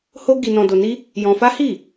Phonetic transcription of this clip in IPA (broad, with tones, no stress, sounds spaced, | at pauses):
h o˦ ɡ i˧ n ɔ̃˧ d o˧ n i˦ | j ɔ̃˧ f a˦ h i˦˨